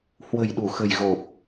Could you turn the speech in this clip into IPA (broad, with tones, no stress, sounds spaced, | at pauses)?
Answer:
h w ə̤˨˩ j ɗ u˧˩ x ə̤˨˩ j ɣ o˨˩ p̚